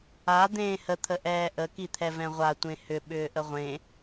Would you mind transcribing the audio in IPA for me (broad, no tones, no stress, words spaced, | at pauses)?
a d̪ẽːhə t̪ʰəʔɛːʔə kit̪ʰɛvɛ̃ʁʷa tʷẽhʏ ɓʏːʔəʁʷẽ